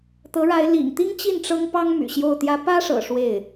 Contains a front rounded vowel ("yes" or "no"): yes